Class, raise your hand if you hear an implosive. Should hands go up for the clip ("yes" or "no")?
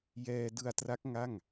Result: no